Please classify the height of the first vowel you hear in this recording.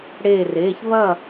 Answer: mid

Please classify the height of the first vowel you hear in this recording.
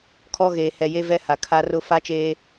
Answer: mid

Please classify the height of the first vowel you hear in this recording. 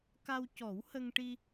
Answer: low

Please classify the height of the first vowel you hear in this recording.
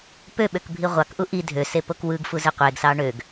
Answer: mid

